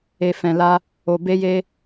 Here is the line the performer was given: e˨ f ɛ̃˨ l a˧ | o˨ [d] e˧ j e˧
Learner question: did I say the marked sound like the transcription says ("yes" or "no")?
no